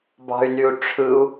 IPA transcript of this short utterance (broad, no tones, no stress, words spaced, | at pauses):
bɑ̤y̯nyu̯ʈ͡ʂʰɯu̯